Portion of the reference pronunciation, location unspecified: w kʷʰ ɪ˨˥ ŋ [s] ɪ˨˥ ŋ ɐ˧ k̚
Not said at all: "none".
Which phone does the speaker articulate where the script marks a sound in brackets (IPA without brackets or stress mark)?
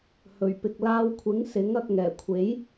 s